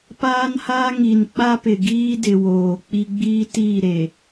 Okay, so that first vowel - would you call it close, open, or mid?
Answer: open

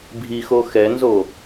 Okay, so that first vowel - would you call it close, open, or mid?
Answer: close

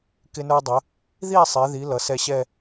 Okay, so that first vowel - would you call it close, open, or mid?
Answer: close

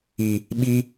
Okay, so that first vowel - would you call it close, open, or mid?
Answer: close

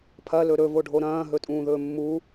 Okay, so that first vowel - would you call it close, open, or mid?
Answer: open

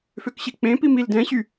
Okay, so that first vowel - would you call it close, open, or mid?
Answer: mid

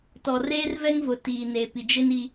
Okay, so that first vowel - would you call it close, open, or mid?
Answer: mid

